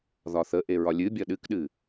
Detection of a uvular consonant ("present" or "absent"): absent